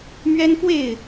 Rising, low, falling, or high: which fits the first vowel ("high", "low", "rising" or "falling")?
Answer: high